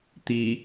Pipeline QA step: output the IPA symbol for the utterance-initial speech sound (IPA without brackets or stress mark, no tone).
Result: t̪